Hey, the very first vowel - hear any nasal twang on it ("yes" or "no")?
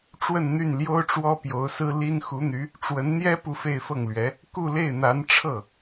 no